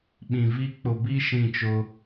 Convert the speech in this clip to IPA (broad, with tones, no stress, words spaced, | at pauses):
ɓĩ˨viː˦ k͡pʊ˨bi˦ ʃĩ˦˨t͡ʃʊ˦